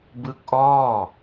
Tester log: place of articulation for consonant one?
labial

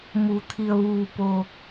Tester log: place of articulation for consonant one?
labial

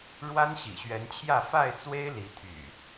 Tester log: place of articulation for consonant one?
retroflex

